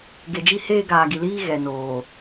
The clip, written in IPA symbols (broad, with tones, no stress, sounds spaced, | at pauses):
ɡ e˨ d͡ʒ i˦ h eː˦ ɡ aː˨ ɡ i˨ l iː˦ ɣ ɛ˨ n oː˨